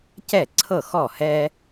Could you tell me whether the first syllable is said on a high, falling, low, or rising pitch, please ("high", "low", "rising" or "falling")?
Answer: falling